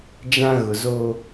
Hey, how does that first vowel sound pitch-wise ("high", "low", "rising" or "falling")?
high